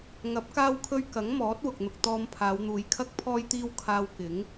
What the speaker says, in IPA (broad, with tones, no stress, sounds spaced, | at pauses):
ŋ ɐ˨˥ p̚ k aː˧ w kʰ ɵ˧ ɥ k ɐ˨˥ ŋ m ɔː˨˥ t̚ w ʊ˨ k̚ n̪ ʊ˧ k̚ t̪ ɔː˧ m pʰ aː˨˧ w n̪ uː˨˧ j kʰ ɐ˥ k̚ pʰ ɔː˥ j t̪ iː˥ w kʰ aː˧ w k ɪ˨˥ ŋ